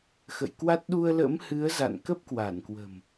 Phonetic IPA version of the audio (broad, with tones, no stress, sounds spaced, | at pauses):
x ə̰˧˨ j k w a˦˥ t̚ ɗ u˧ ə̯ l ə̰˧˥ m h ɨ˨˦ ə̯ z a̰˧˨ n k ə˦˥ p̚ k w a˧˩ n k w ə̤˨˩ m